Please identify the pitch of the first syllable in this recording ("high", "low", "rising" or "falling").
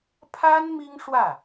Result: high